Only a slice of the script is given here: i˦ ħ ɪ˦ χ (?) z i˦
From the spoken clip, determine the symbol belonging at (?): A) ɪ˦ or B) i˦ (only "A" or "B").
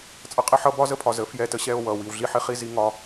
B